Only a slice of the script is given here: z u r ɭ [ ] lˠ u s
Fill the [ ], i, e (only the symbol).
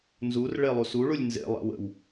e